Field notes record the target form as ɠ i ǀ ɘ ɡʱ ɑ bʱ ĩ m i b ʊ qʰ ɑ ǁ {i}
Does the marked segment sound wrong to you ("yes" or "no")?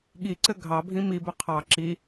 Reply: no